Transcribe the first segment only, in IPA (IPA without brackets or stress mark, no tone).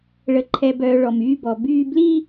ɭ